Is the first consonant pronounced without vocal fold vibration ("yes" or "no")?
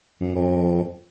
no